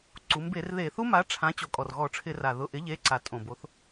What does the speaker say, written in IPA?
ǀu˩˧mbe˧˩˧rðe˧˩˧θu˦˥ ma˩˥ʈ͡ʂʰã˩˥ t͡ɕo˩kʼɔ˩r ɣɔ˧˩˧ʈ͡ʂʰɪ˧˩˧ra˩ ðʊ˩˧˩ʔɪ˩˥ ʎe˩˧˩ǀa˩ tʼõ˩bo˩˧θ

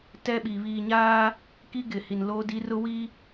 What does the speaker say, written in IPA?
tɛ˦ɓi˨ βiː˨ɲaː˦ | ki˦ɡɪ˨ hi˨nloː˦di˦ rʊ˦ wi˦

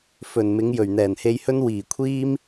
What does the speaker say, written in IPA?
fɵ˨˩nmɪ˨˧ŋ jɵ˨˩ɥn̪ɛː˨˩nhe˧jhɵ˥n wiː˨˩kʷʰiː˥m

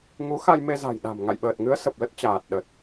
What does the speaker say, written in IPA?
ŋu˨˦xa˧jme˧ za̤˨˩jɗa̤˨˩m ŋa̰˧˨jɓəː˨˩t̚ŋɨ˨˦ə̯ sə˨˩p̚lə˦˥t̚t͡ɕaː˨˩t̚ ɗə˨˩t̚

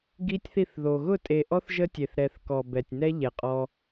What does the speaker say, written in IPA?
ɡi˦tʲθi˦˨θðo˨ ɣʊ˦˨tʼe˨ʔɔ˦θ ʒə˦tʲe˨θ ɾɛ˨θ kɔ˨bɛ˨tʲnɛ˦ ʎɛ˨qʼɔ˦

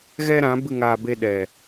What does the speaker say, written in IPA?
ɣɛ˦ɾã˨˦ bɨ˦˨ŋaː˧be˧ ɗɛ˨

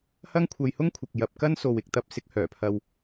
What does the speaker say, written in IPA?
hɐ˥ŋkʷʰɐ˧jhʊ˥ŋkʷʰɪ˨k̚ jɐ˨p̚ kɐ˥n so˨wɪ˨k̚ t̪ɐ˧p̚sɪ˨˥k̚hœː˨˩ pʰɐ˧w

